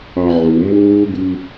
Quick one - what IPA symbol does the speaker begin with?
ɑ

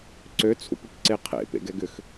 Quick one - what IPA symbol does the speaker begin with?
ǀ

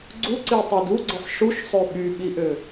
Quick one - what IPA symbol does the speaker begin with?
ɡ͡ǀ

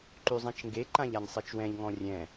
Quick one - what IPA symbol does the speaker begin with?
ǃ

